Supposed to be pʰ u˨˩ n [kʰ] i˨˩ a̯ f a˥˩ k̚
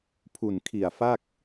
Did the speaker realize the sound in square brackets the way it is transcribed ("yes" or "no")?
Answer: yes